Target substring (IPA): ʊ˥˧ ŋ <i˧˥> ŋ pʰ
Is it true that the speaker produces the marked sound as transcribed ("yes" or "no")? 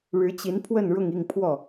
no